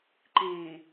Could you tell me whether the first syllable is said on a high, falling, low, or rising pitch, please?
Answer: low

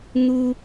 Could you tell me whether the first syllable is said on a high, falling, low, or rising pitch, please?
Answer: high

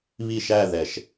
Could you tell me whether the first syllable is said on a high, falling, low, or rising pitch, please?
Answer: falling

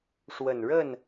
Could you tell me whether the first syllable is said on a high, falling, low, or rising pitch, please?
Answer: low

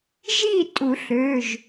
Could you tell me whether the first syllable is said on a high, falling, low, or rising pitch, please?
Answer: falling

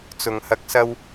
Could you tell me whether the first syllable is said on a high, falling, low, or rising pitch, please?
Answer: low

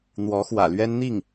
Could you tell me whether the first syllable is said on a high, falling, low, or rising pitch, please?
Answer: rising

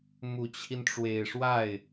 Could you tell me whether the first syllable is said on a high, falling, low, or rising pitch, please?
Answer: low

